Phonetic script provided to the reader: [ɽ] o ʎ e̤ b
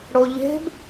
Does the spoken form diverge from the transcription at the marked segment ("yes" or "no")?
no